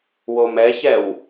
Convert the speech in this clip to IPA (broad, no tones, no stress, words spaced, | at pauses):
womɛçɛw